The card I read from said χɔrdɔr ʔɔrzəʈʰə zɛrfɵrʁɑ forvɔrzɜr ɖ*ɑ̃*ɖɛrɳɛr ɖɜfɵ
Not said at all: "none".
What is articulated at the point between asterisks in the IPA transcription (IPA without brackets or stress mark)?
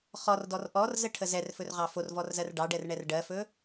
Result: ɑ